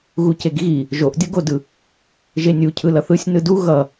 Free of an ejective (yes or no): yes